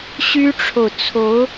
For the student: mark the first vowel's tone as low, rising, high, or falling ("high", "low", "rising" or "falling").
high